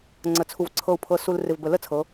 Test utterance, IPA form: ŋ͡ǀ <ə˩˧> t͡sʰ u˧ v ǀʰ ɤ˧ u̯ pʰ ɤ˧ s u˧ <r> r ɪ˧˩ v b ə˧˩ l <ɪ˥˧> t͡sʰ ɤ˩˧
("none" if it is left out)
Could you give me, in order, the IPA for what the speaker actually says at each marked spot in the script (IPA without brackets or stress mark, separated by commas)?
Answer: ə˧, l, ə˥˧